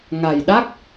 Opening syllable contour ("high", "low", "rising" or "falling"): low